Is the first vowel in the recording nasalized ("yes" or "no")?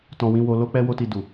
yes